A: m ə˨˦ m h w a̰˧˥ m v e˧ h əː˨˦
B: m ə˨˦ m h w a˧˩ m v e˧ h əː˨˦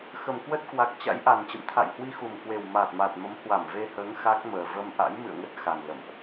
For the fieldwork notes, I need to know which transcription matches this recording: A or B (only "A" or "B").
B